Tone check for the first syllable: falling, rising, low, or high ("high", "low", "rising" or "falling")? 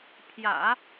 low